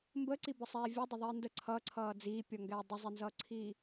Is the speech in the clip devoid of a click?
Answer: no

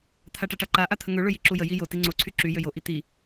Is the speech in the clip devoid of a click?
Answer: no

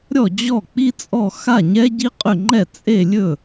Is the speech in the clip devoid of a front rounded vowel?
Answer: no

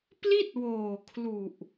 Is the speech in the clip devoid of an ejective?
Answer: yes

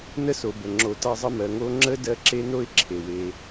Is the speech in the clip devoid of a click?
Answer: no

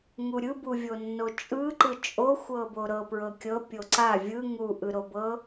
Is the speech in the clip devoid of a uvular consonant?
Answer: yes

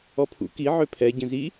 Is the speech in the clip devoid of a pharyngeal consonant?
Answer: no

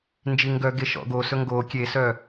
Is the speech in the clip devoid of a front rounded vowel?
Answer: no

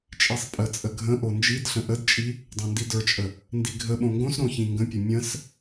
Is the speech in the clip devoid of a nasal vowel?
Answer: no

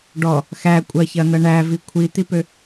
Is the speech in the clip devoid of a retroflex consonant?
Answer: no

